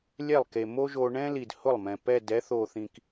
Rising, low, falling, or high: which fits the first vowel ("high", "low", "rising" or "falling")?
falling